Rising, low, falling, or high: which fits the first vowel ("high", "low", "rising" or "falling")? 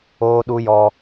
high